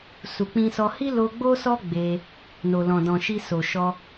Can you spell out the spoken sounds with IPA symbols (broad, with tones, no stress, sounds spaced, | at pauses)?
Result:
s u˨ k͡p ĩ˧ s ɔ˧ h i˦ l o˧ ɡ͡b o˦ s ɔ˦ ɡ͡b e˦ | n o˨ l ɔ̃˨ d ɔ̃˨ ʃ i˧ s o˨ ʃ ɔ˧